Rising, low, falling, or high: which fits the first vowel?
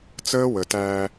high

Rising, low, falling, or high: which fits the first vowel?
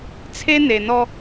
high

